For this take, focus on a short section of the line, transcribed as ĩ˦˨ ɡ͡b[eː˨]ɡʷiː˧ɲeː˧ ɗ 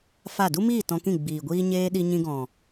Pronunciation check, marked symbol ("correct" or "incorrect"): incorrect